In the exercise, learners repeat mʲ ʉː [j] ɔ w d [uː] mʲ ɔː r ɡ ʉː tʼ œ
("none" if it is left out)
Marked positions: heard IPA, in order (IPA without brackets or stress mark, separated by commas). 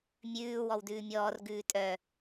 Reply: w, ʉː